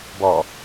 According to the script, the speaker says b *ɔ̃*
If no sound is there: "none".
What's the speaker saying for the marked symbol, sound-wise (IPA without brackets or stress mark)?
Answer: ɔ